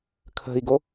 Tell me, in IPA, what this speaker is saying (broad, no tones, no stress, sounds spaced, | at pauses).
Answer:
kʰ ə̤ i̯ ɡ o